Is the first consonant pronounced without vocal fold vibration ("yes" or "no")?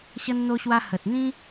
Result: yes